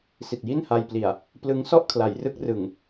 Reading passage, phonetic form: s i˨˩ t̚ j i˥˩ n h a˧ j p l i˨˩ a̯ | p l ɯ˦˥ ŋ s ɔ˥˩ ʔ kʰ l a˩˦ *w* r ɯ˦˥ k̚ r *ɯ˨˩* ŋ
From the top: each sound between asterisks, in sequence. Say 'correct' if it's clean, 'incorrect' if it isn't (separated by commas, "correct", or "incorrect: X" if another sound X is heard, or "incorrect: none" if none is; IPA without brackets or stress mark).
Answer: incorrect: j, correct